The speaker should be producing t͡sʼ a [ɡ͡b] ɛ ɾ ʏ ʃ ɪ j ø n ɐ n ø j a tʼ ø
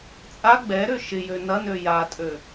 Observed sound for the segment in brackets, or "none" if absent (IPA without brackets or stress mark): ɡ͡b